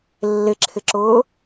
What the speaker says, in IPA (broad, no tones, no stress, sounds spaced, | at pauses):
lː ɪ ǁʰ ɪ ǁ ʊː